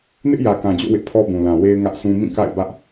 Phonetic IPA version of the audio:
nɪ˦ʔjä˨kã˨d͡ʑo̰˦˨ wɪ˦ʔpʰɔ˦bũ˨ lã˨we˦ɪ̯ ŋä˦ʔsʰũ˦ mĩ˦˨ka̰˦˨ɪ̯ bä˦ʔ

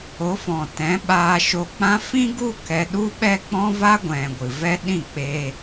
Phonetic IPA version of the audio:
o˨˦fɔ̃˨tɛ̃˨˦ ɓaː˧ʃo˧k͡pã˦ fĩ˦ɡu˦ kɛ˧ɗu˦ ɓɛ˦k͡pɔ̃˦va˦ ɡʷɛ̃˨ ɡʷɨ˨vɛ˦ ɗĩ˦˨k͡pe˧

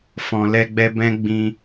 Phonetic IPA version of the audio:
fɔ̃˨lɛ˧ɡ͡bɛ˧ bɛ̃˦ɡ͡bĩ˧

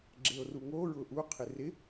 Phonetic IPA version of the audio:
ɡ͡ǁeo̯ruŋo ɹʊʔu qʰɪrɪ

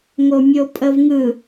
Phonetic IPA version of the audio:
ŋomʲopʼəvŋɯ

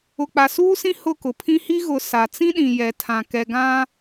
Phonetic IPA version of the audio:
ʊ˨k͡pa˨suː˦sĩ˦ hʊ˦˨kʊ˨pʰĩ˦hi˦ ɣʊ˨ sa˨t͡sĩ˦ɗĩ˨jɛ˨ tʰã˨ kɛ˨ɡã˦

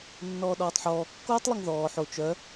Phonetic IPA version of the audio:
nːɔːɗɔːtˤħɔː kːoːtˤlˠoŋðɔː ħo t͡ʃœ

